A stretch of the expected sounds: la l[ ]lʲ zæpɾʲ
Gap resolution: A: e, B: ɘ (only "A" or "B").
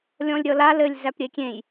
B